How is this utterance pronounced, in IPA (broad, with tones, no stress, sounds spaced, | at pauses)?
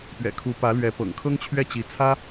p ɥ ɛ̰˨˩ kʰ u˧˥ p ä˧˥ l ɥ ɛ˧˥ p ɤ̰˨˩ ŋ kʰ ɤ˥ ŋ t͡ɕʰ ɥ ɛ˥˩ t͡ɕ i˧˥ t͡sʰ ä˥